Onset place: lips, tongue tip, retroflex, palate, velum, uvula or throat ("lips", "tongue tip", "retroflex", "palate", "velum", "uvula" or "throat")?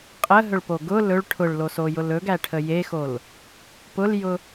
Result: uvula